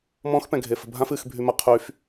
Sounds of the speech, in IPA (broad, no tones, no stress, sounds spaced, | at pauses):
m ɔ̃ x p ɛ̃ ɡʱ e f ə̤ bʱ ã f ɨ x bʱ y m ə qʰ y f